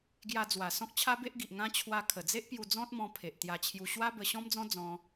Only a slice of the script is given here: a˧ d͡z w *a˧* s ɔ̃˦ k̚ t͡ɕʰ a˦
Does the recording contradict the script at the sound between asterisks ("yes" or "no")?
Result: yes